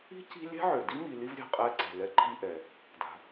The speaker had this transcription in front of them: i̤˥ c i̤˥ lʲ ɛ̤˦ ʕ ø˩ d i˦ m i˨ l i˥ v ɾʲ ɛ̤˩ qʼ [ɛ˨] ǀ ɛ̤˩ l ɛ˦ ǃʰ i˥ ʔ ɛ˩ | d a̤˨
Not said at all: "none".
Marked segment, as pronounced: ɛ˦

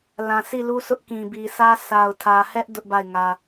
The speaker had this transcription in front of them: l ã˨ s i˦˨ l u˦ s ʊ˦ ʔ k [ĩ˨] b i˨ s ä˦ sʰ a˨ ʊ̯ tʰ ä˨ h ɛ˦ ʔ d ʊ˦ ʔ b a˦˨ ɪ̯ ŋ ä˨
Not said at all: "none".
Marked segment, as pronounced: ĩ˨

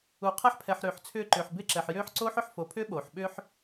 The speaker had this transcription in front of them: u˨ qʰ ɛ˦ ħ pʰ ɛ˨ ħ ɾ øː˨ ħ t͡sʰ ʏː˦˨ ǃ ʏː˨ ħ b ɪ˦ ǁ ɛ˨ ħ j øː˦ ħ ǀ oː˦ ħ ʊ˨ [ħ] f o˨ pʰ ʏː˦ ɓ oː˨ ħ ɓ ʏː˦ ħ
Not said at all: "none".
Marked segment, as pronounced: ħ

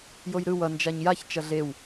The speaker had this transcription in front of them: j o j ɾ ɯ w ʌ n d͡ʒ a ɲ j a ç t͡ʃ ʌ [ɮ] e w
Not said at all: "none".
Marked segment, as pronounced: ɮ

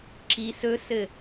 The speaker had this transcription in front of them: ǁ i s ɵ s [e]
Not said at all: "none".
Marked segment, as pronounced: ɘ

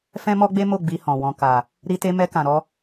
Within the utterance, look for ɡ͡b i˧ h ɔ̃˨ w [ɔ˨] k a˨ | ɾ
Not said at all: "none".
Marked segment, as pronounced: ɔ̃˨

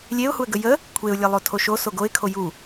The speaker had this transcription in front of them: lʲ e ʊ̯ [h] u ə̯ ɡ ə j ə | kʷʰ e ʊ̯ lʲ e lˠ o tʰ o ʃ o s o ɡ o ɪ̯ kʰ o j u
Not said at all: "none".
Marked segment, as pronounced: h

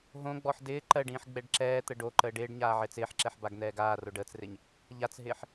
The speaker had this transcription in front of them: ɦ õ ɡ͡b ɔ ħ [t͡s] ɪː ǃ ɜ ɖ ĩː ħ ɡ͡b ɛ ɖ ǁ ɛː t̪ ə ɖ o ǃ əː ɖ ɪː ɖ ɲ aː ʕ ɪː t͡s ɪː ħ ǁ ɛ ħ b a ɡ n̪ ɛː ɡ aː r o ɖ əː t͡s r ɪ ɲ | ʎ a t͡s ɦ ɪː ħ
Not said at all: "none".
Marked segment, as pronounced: d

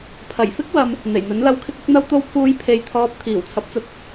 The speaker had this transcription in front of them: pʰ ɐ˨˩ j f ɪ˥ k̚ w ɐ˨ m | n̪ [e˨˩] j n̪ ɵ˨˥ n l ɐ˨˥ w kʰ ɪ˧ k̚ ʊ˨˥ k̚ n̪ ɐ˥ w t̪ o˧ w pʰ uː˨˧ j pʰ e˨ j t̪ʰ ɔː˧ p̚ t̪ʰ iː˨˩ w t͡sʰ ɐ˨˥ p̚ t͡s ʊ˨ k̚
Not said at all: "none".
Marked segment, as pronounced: e˨˩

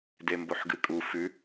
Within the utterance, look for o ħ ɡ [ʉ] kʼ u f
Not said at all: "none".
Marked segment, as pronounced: ɨ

